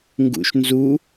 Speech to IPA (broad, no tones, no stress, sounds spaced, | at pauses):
ŋ ɡ ṵ ʃ n z u